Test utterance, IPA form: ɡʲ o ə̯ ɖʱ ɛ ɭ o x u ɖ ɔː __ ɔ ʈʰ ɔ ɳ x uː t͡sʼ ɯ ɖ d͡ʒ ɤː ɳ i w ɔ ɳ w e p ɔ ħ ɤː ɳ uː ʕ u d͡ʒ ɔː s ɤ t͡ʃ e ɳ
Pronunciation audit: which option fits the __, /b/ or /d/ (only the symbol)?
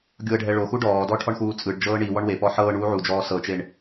d